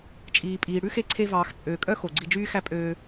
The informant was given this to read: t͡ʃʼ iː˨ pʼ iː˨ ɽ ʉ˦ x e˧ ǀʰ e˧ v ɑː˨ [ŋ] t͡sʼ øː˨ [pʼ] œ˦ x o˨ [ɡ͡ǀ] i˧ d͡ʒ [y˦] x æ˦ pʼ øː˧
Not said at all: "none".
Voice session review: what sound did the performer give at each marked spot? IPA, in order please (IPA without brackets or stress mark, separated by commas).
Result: x, kʼ, ɡ͡ǀ, yː˦